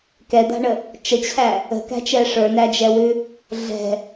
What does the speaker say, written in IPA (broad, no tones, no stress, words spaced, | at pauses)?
kɛd̪a̤ɳə | t͡ʃət͡ɕʰæ | ə̤kæ̤t͡ʃɛ ʂə˞næd͡ʒɛwʉ | ɮɛ̤